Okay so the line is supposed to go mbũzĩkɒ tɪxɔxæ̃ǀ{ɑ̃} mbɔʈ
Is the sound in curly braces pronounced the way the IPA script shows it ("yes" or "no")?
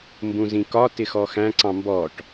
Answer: yes